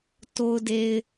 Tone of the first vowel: low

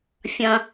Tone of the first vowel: low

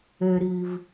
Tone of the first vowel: low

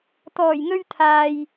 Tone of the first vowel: low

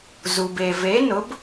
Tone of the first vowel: low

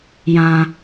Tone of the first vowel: high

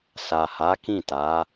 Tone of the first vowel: low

